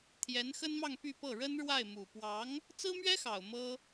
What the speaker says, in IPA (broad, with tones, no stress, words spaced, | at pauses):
t̪ʰjɛ˧˥nxə˥nmɑ˥˧ŋ py˥˧pɤ˥˩ ɻə˥nɻwa˥˩ɪ̯mu˨˩ pwɑ˧˥ŋ | t͡sɹ̩˥mɥɛ˥xɑ˨˩ʊ̯ mɤ˥